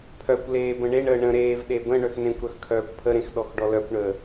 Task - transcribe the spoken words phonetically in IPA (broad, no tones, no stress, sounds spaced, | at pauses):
pʰ œ kʷ l eː b ə̃ ɳ e ɳ əː ɳ ə̃ ɾ eː v ɗ e b ə̃ ɳ œ x n ẽ kʷ ɾ œ x kʰ œː kʷ pʰ ə ɾ ẽ x ɗ ɔ x ɖ ɔ l œ kʷ ɳ əː